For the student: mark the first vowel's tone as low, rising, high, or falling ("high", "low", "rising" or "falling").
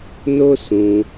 high